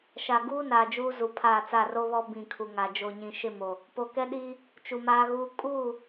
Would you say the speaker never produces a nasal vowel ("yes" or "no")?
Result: no